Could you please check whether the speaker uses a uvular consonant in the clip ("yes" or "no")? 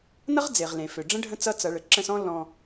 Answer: yes